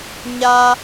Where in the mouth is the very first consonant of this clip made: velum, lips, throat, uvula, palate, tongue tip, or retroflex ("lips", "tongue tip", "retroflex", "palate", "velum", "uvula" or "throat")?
palate